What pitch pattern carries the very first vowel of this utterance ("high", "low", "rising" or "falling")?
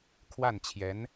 falling